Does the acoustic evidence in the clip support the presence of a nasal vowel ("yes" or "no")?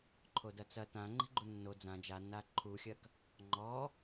yes